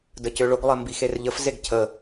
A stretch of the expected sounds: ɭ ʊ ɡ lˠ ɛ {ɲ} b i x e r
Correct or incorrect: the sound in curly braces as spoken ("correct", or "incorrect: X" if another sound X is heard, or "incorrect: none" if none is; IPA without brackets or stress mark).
incorrect: m